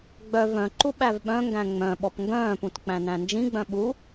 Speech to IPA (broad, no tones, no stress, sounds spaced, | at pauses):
ɡ͡b œ v œ̃ ǃ u ɓ æ v ɓ œ̃ ŋ ɡ æ̃ ŋ͡m œ̃ ɓ ɔ p ŋ ɡ œ̃ː p ũ t k͡p æ̃ n æ̃ n d͡ʒ ĩ ɡ͡b œ̃ ɓ u